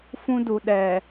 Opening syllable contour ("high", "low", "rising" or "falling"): high